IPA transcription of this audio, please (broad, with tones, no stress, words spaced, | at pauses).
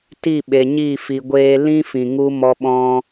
ti˦˨ɓe˨ɲi˦˨ fi˨ɡʷeː˧ lĩ˦fĩ˨ ŋu˦mɔ˦ɓɔ̃˦